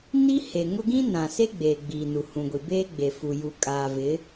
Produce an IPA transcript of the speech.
n i˦ h e˨ ŋ ʊ˦ ɡ ĩ˦ n ã˨ s e˦ ɡ͡b eː˨ ɡ͡b i˨ n u˨ h ũ˨ ɡʷ i˨ b eː˦ ɡ͡b e˨ f u˨ j u˨ kʼ aː˨ v ɪ˨˦

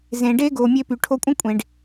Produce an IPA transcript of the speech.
z ẽ˨ ɖ e˦ ɡ o˨ mʲ e˧ p y˨ ʈʰ o˧ kʷʼ ə̃˦ kʷʼ ẽ˨ ɖ

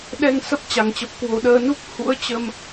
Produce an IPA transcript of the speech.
ɗ ɛ˧ ŋ s ə˦˥ p̚ t͡ɕ a˨˩ ŋ t͡ɕ ə˨˩ p̚ k w o˨˩ ɗ əː˧ n u˦˥ k̚ h ṵ˧˥ ə̯ t͡ɕ ə˧ m

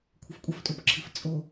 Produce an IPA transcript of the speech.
kʷʰ ɐ f kʷʼ ɐ f tʼ u p ǁʰ i f t͡sʼ o

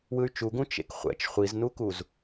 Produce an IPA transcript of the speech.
w ɯ y̯ t͡ʃ u ɡ ũ t͡ʃ ḛ k χʷ ɛ̰ t͡ʃ χʷ i z n u k u z

